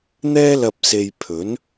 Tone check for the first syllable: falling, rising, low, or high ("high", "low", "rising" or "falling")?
high